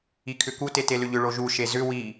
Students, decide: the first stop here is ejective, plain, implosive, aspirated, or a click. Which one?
aspirated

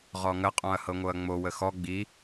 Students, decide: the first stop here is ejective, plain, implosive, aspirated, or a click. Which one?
ejective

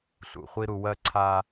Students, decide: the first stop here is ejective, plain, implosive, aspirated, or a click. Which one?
click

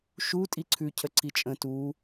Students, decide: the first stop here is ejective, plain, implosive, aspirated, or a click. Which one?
ejective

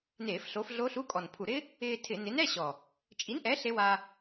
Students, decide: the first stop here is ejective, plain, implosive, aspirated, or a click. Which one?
ejective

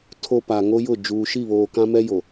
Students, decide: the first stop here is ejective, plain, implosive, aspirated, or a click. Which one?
aspirated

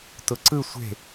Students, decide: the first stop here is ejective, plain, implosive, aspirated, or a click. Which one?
plain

